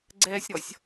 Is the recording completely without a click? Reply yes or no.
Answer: no